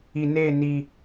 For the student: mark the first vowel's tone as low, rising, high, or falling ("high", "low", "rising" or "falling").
low